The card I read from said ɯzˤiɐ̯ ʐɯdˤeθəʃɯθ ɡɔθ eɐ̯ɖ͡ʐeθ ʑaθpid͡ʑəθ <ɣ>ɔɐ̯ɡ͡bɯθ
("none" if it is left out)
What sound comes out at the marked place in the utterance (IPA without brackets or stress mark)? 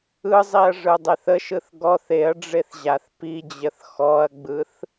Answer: x